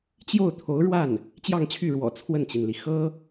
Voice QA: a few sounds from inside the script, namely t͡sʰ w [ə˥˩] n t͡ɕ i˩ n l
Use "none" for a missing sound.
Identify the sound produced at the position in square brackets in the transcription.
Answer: ə˥˩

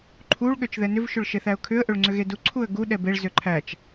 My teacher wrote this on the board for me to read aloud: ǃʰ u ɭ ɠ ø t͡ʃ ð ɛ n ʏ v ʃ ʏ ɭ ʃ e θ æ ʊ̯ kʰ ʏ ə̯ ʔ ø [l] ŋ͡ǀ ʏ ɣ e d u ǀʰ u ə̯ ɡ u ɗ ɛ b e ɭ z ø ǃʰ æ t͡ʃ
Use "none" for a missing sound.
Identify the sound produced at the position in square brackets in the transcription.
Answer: ɭ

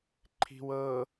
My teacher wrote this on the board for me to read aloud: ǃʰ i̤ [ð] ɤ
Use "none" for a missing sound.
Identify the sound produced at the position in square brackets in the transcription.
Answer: w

